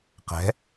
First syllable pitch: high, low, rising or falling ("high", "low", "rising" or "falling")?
rising